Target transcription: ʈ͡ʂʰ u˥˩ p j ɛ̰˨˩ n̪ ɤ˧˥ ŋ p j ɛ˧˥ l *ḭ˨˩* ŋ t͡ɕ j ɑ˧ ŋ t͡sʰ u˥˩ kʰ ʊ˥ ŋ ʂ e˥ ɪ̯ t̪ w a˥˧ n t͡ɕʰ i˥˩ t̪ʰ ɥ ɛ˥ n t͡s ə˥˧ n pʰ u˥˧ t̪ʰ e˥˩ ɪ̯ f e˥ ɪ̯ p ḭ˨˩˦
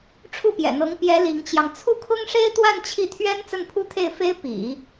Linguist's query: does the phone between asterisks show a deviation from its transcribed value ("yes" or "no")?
yes